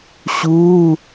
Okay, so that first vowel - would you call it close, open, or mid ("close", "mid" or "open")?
close